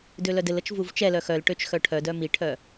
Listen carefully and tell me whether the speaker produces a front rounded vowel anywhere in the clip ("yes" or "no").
yes